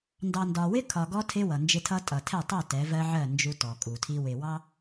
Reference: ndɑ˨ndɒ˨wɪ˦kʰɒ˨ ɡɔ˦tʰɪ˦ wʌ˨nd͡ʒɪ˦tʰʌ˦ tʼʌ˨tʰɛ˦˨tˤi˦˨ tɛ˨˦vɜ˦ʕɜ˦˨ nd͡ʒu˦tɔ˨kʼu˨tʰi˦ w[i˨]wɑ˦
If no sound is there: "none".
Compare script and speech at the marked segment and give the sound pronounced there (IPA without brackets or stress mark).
ɪ˨